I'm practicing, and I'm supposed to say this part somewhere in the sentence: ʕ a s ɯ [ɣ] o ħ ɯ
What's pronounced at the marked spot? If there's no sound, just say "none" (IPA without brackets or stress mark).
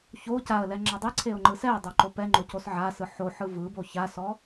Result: ħ